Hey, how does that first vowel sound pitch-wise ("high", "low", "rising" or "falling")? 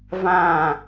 falling